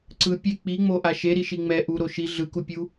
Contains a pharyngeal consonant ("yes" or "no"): no